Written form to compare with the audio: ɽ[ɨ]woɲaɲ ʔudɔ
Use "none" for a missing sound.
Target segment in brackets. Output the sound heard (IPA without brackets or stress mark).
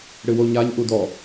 ɨ